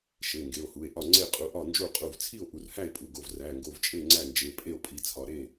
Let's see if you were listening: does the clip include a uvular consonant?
yes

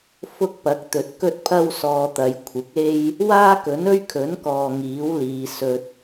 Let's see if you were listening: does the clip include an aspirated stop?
yes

